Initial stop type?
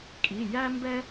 ejective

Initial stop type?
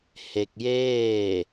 plain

